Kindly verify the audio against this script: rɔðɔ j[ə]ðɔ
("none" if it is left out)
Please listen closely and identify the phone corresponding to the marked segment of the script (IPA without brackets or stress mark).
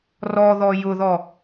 ʊ